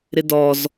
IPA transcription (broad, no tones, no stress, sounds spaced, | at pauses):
ɾ ɪ d ɔ z